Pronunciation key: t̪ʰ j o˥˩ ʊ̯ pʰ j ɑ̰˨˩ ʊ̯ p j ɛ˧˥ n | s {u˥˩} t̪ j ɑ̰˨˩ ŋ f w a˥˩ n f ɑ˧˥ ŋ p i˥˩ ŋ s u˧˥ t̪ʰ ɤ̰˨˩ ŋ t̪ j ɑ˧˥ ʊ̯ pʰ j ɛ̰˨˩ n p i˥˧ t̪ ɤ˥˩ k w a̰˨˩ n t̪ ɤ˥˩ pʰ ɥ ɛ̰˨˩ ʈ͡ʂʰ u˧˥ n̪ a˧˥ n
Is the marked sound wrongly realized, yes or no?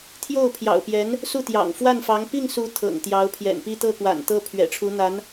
no